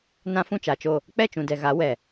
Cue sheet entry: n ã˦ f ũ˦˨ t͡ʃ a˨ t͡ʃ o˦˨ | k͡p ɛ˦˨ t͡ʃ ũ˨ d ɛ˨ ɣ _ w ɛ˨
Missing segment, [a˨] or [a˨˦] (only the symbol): a˨˦